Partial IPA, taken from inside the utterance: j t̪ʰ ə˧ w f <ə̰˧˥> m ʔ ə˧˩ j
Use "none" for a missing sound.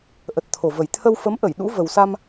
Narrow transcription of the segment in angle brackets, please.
ə˨˦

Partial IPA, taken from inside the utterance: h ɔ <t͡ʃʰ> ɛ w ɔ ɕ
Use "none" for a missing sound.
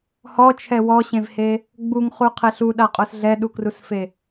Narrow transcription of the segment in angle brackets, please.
t͡ʃʰ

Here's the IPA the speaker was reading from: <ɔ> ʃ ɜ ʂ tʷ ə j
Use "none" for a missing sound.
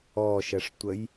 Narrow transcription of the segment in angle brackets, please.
ɔ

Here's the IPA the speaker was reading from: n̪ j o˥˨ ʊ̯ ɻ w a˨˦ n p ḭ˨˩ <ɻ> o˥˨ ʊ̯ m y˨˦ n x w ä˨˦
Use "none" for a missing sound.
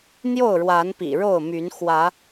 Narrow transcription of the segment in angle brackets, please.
ɻ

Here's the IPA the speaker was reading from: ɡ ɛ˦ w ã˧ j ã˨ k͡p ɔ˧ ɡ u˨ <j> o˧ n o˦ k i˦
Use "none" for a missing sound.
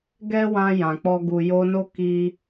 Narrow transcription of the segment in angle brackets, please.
j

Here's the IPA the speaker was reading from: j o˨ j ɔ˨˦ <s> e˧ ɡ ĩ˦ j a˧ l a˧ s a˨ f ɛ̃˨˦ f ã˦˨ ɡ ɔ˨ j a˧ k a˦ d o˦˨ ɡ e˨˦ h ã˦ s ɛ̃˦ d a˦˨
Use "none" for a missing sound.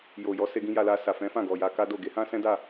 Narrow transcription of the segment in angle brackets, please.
s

